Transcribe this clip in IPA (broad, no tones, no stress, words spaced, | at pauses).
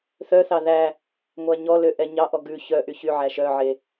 θœθɑ ðæ | ŋʷæɲɔlø ʔɛɲɑʔɔ ɡʉ çœʔy çyʕæ ʃœʕe